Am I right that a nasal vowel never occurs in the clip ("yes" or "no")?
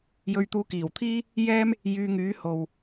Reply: yes